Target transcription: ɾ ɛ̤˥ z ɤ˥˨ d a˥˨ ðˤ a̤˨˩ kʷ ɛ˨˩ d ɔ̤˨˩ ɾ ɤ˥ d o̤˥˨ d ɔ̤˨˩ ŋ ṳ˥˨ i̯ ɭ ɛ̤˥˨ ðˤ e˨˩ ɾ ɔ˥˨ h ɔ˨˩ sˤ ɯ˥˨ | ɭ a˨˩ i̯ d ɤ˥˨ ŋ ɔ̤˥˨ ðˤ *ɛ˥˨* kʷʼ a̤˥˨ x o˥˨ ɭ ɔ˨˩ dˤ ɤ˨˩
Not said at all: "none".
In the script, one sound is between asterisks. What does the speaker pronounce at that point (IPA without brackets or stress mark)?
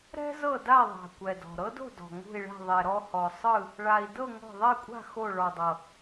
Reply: ɛ˥˨